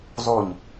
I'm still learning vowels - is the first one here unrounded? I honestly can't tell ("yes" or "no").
no